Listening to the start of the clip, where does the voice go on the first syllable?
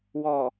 low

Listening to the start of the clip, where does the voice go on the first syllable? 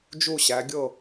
falling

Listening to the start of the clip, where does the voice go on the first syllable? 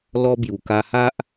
high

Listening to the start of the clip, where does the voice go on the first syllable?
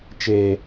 low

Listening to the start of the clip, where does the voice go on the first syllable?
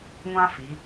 high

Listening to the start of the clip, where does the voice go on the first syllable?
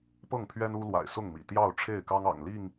falling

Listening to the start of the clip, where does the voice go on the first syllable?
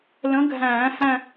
rising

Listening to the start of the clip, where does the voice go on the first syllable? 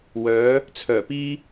rising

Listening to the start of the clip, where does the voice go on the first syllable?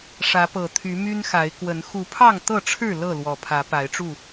rising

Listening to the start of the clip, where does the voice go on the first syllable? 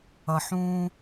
low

